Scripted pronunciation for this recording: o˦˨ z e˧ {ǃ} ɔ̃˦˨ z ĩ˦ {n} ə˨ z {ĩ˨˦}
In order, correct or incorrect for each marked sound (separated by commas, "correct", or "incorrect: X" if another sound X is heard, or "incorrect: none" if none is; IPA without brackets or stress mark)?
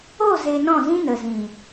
incorrect: n, correct, incorrect: ĩ˨